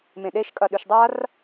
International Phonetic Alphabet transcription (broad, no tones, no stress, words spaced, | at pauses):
mẽɗeʃ kʼɐɗʉʃdˤar